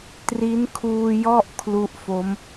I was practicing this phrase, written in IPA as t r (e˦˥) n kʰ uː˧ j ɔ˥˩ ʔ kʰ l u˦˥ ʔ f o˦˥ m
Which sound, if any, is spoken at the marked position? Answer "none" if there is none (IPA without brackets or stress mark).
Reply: i˦˥